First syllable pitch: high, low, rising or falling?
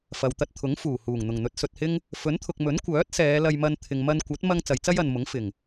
low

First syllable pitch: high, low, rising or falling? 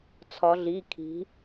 rising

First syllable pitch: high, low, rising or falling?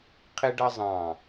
high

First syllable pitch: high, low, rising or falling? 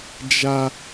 high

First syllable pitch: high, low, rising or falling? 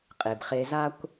low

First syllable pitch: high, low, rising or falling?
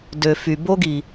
low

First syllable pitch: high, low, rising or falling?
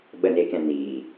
low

